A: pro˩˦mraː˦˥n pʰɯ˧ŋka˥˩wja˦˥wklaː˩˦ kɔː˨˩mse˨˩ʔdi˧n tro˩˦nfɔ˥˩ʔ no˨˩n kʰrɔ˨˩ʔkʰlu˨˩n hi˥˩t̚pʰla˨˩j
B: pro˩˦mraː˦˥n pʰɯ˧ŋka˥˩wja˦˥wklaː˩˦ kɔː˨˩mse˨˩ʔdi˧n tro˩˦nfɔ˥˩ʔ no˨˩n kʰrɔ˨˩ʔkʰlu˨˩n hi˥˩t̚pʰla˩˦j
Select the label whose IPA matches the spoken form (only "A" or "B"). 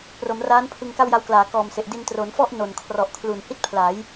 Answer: B